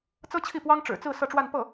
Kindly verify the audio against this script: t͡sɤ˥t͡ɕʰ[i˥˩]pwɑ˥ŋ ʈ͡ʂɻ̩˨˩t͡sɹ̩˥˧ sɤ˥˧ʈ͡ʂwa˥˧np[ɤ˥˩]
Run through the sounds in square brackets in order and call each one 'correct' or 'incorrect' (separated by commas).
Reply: correct, correct